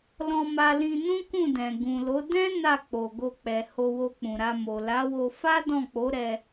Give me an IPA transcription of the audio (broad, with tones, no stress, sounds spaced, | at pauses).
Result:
l ɔ̃˧ m a˧ l ĩ˧ n ũ˦ k ũ˦˨ d ɛ̃˨ ɡ ũ˨ l o˨˦ d ɛ̃˦ n a˦˨ k͡p o˨ ɡ o˧ k͡p ɛ˨ h o˧ w o˧ k͡p ũ˨ ɾ a˧ m o˨ l a˨˦ w o˧ f a˦ d ɔ̃˦˨ k͡p o˨˦ ɾ ɛ˧